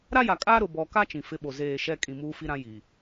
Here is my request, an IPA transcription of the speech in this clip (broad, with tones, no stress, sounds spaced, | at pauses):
ɾ a˦ j a˨ kʼ aː˦ ɾ ʊ˨ b ɔ˨ k a˦ t͡ʃ ĩ˨ f ɪ˦ ɓ o˨ z eː˦˨ ʃ ɛ˦ kʼ ĩ˨ m uː˦ f i˦ ɾ ã˦ j i˨